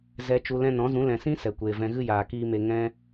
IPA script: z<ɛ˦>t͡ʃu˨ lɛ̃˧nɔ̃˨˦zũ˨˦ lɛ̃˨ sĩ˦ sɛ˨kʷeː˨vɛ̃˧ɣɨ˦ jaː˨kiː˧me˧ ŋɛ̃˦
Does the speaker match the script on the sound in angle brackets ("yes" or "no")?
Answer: no